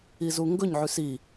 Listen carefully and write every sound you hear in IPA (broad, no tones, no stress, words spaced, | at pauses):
izuŋɡɵɲʕʉs i